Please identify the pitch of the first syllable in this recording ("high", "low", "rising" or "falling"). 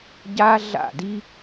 high